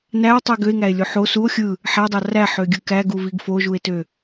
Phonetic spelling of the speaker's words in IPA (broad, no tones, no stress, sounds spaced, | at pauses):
n æ o̯ tˤ i ɡ ø e̯ ŋ æ e̯ lʲ o ħ o s u o̯ xʲ ɯ | ħ æ dˤ ɑ r æ ħ ø ɡʲ ɯ k æ ɡ u v i ɡ f o ʒ u e̯ t ø